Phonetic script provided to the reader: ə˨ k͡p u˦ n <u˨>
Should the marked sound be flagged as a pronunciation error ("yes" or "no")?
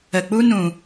yes